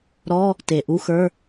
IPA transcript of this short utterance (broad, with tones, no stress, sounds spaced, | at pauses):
ɾ ɔ˧˥˧ | t e˩ ʔ u˧˥˧ x ə˞˧˥˧